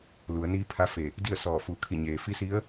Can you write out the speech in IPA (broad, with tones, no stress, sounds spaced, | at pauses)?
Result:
l u˩˧ ə̯ n iː˧˥ pʰ a˧˥ f e˧˩ | d i˥˨ ə̯ s ɔː˧˩ f u˧˩ kʰ i˧˩ ɲ eː˩ f i˧˥ s i˧˥ ə̯